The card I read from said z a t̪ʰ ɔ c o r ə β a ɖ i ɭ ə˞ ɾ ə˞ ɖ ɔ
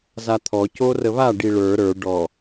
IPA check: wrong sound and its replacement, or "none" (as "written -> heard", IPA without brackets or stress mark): none